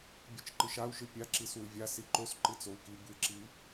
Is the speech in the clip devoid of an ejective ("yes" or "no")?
yes